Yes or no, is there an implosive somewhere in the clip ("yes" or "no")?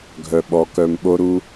yes